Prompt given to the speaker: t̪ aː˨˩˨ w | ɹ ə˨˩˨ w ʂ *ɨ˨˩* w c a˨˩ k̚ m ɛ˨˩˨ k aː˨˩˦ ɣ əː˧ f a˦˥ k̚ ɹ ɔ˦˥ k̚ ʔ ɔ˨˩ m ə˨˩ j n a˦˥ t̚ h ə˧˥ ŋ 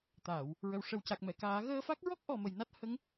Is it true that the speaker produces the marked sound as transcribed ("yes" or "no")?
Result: no